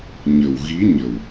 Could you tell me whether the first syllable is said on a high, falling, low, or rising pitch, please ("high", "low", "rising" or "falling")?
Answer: low